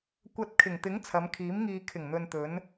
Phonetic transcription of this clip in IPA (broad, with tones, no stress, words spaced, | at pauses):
kʷɐ˨t̚ kʰɪ˨˩ŋt̪ɪ˨˥ŋ t͡sʰɐ˨˧mkʰiː˨˥mŋiː˧ kʰɪ˨˩ŋn̪ɵ˨nt̪ɵ˨˧n